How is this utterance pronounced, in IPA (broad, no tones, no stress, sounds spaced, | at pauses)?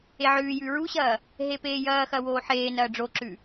e ʕ ʉː j ʉ ɹ u ɕ ɐː | ɦ e p eː j ɐː x ɐ w oː ħ eː n ɐː ɖ͡ʐ o ǁ ʉ